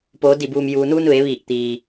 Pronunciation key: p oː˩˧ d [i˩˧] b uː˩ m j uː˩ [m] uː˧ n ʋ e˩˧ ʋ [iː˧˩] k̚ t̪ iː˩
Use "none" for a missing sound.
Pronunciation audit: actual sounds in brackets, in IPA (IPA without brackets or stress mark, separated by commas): i˧˩, n, iː˧˩